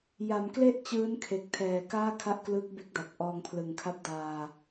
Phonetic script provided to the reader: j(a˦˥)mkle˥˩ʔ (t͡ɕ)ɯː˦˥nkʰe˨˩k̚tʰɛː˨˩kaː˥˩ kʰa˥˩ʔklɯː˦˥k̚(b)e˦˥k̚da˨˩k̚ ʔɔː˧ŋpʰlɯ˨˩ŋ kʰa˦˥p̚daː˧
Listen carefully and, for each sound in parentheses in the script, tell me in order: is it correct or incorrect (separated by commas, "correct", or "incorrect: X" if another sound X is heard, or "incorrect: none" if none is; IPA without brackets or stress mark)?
incorrect: a˩˦, correct, correct